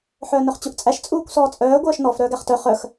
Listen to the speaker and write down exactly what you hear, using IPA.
ħœːnɵχt͡ɕuʔt͡sʼæʃ t͡sʼuːkʷsɔːt͡sʼœː ɡʷœːʃnɔf ɾœːɡæχtœ χœx

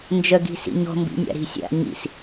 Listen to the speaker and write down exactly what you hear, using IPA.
nd͡ʒœɡi̤sḭɲɔ̤ mbḭnʲa̰ɾi̤sʲa̰ ɲḭs

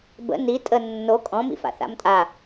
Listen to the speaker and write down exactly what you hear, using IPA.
bə̰ ni tʼə nːo kʼɔ̃mḭfa̰ θa̰mtʼa

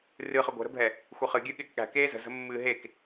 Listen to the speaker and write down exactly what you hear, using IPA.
rɨχə ɡʷɛ̤ɾə̤bʱɛ | xʷɪχɨ ɡʲɨɠɪːkɠæ̤ keːzə̤ zə̤mːɨːɦek

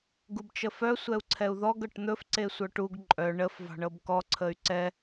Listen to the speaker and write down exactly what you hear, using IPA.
ɡubt͡ʃəfœ sʷɛu̯ǀʰɛu̯ðɔɡ ɤʈn̪ɵf ǀesʷœʈuɡ ǃʼœ ɳəf vɑ̤ɳɤbkɔ ǀʰəy̯ǀɛ

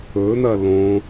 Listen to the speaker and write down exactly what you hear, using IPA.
ɵn̪ɐ lõ

